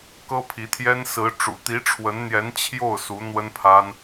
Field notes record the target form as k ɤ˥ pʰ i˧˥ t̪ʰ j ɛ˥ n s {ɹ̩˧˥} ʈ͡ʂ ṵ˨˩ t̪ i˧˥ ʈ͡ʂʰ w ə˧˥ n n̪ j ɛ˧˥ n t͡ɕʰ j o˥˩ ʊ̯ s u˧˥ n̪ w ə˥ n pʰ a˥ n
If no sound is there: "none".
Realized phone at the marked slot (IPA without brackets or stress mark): ɹ̩˧˥